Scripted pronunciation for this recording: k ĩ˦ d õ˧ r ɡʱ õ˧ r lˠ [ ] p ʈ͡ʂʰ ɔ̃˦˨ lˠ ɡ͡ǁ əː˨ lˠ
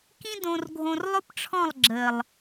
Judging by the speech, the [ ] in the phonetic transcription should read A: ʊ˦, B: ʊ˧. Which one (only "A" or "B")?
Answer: A